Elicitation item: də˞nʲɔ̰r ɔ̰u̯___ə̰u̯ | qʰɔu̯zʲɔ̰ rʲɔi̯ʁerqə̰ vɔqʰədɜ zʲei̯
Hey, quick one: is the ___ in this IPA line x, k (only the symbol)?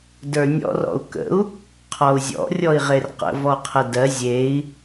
k